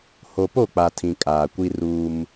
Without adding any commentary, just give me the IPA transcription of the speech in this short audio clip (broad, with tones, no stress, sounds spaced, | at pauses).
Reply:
h o˨ p o˦˨ k͡p a˨ tʰ ĩ˨ kʼ aː˨ kʷ i˦ r uː˦ m